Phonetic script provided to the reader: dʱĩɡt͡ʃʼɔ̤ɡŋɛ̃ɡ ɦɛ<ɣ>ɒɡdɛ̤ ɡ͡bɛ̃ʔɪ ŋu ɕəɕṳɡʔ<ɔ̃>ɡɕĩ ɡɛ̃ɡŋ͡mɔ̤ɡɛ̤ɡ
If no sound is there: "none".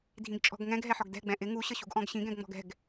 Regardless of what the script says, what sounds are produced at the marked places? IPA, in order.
ħ, ɔ̃

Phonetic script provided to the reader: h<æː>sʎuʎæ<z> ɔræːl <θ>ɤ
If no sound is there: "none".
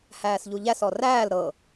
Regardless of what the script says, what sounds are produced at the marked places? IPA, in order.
æː, s, ɾ

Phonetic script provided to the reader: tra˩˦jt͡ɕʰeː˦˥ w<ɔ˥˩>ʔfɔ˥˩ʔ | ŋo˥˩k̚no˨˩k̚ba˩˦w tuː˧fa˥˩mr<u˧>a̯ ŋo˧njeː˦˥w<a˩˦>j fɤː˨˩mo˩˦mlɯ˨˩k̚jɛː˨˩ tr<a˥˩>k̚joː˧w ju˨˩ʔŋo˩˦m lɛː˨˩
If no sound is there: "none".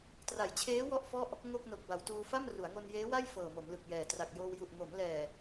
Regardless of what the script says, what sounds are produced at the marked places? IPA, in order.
ɔ˥˩, u˩˦, a˥˩, a˨˩

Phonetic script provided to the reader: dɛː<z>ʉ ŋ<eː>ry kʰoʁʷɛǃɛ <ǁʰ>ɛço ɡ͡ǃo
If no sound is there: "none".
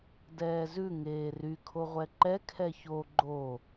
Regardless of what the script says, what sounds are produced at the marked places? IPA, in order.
z, eː, kʰ

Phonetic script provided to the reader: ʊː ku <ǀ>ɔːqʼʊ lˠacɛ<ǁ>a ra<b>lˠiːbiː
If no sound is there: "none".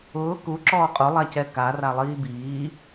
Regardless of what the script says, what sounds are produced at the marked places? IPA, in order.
ǁ, k, none

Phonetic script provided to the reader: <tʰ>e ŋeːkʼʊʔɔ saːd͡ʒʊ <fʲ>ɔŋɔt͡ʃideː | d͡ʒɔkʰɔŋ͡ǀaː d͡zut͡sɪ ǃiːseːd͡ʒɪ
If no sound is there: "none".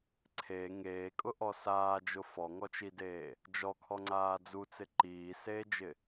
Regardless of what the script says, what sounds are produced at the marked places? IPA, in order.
ǀʰ, f

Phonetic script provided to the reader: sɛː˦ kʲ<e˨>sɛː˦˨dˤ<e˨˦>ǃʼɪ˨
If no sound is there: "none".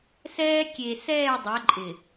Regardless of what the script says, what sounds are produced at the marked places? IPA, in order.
e˨, ɛ˨˦

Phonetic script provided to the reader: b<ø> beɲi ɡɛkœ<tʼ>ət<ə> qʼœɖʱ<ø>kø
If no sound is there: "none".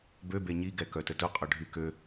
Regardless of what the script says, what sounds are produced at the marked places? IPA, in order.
ø, t, ʊ, y

